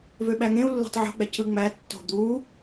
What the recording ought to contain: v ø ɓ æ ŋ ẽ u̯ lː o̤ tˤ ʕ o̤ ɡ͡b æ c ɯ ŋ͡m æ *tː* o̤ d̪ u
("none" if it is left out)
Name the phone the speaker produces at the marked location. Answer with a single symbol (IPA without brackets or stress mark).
tː